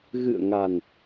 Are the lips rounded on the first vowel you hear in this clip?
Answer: no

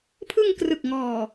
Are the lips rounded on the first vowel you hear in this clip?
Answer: no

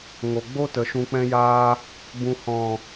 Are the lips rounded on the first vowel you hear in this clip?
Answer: yes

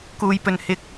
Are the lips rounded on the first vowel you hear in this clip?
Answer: yes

